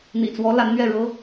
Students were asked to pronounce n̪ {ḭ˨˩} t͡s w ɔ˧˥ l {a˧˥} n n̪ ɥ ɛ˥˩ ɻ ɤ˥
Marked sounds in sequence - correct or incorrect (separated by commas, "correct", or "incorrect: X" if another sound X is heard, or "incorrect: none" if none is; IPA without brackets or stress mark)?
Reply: correct, correct